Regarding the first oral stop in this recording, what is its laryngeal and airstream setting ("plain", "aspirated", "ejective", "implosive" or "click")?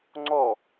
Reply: click